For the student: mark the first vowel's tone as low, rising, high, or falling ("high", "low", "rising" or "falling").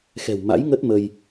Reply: low